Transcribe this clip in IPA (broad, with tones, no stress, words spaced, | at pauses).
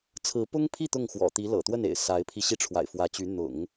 t͡sʰɹ̩˧˥pʊ˥ŋpʰi˥˧ t̪ʊ˥˩ŋxwɔ̰˨˩t̪i˧˥ lɤ̰˨˩t̪wə˥˩nḛ˨˩ɪ̯ sa˧˥ɪ̯pʰi˧ɕi˥˩ ʈ͡ʂʰwa̰˨˩ɪ̯fwä˧˥t͡ɕy˧˥ n̪ʊ̰˨˩˦ŋ